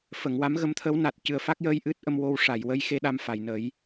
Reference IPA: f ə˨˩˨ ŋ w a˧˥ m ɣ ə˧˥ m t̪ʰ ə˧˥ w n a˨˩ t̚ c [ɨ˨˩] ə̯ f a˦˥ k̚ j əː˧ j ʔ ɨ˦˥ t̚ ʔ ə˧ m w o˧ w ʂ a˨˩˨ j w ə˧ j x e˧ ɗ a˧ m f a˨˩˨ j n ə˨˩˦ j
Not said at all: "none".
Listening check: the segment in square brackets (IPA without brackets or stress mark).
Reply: ɨ˨˩